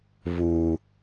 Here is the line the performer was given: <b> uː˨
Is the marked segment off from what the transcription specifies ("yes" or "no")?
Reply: yes